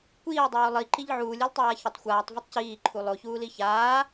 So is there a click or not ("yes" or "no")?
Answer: yes